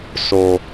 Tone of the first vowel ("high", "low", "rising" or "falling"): low